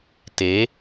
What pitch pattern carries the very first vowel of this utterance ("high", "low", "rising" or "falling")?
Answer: rising